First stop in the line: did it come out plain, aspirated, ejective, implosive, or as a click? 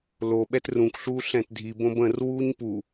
implosive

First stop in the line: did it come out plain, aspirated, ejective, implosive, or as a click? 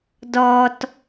plain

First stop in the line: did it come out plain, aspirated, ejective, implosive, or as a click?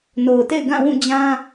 plain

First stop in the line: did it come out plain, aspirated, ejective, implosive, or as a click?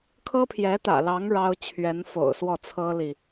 aspirated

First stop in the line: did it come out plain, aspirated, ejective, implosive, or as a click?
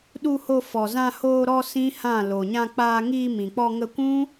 implosive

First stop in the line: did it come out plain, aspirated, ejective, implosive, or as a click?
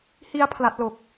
aspirated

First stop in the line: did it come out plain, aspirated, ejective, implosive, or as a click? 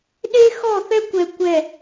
implosive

